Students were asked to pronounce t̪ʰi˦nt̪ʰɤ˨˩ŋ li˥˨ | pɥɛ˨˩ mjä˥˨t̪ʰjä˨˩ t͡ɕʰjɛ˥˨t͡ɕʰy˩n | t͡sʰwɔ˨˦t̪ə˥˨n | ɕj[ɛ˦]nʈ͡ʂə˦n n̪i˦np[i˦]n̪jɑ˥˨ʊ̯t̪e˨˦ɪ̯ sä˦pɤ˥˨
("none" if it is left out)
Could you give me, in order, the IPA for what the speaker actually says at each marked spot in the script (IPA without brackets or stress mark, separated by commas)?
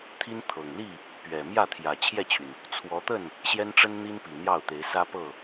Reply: ɛ˦, i˨˩